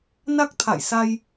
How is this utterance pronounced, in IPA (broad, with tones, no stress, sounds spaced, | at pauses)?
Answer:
n a˦˥ k̚ t̪ʰ a̰˧˨ j s a˧ j